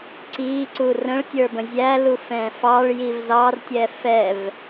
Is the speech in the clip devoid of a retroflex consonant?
no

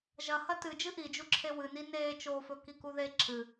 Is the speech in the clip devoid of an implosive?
yes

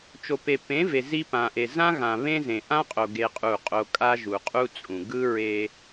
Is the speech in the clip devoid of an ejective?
no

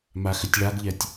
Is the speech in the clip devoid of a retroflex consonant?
no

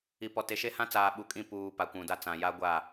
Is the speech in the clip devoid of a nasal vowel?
no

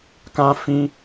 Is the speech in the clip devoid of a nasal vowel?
no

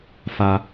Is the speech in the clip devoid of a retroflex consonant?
yes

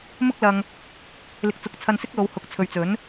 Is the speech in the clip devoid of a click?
yes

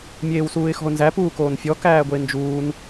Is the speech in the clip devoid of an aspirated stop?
yes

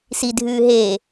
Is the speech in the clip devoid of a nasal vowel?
yes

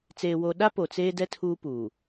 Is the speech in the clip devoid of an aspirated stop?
no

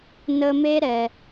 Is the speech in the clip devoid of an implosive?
yes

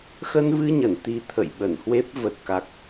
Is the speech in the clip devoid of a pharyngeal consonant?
yes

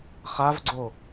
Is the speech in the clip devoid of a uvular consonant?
no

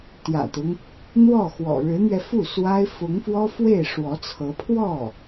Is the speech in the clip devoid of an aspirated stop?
no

